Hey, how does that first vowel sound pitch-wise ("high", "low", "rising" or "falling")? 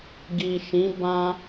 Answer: low